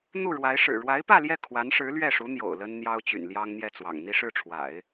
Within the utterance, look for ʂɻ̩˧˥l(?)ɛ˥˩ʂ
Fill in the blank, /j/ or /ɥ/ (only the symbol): ɥ